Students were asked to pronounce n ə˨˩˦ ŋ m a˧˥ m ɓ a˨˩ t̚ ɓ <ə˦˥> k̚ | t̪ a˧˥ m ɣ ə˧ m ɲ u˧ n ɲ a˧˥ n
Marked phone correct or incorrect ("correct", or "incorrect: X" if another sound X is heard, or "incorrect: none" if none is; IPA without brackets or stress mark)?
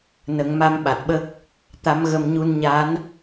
correct